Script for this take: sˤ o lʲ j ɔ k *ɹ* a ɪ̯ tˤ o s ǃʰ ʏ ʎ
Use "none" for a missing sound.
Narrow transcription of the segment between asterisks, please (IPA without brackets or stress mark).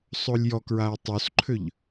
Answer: ɹ